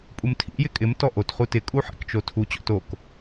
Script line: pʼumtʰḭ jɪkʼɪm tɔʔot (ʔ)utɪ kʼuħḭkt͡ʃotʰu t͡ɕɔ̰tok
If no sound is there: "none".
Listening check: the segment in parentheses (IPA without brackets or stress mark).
χ